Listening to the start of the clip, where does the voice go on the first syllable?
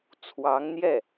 rising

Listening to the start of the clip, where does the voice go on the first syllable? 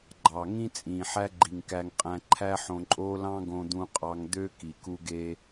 low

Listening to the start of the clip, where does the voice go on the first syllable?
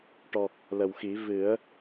low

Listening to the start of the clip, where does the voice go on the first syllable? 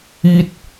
high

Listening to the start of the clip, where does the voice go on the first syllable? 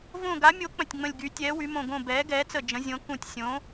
falling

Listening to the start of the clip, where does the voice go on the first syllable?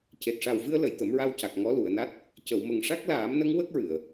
low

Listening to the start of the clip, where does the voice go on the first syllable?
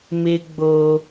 high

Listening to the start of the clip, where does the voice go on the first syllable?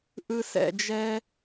high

